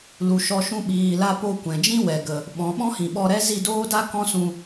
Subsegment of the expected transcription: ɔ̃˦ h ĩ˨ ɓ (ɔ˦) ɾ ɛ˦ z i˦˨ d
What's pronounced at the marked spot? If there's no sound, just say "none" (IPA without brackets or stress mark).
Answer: ɔ˧